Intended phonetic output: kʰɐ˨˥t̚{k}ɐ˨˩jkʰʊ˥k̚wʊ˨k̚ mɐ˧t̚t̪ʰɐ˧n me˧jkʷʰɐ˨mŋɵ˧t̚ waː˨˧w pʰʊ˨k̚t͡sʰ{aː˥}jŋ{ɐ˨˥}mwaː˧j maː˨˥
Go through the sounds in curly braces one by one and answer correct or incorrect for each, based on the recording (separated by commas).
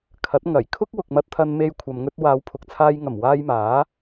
incorrect, incorrect, incorrect